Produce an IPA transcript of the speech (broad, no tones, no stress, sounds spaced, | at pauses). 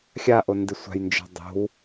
xʲ a ʔ o n d ɪ sʷ a̤ j n d͡ʒ ɔ̤ dˤ o̤ w